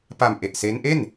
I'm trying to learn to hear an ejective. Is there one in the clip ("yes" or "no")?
no